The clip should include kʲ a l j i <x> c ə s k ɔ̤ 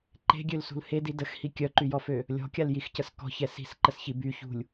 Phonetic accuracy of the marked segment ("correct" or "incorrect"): correct